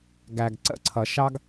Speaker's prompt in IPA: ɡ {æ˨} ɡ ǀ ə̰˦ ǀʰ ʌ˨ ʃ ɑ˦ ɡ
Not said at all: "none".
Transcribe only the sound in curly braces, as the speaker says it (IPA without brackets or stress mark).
æ˨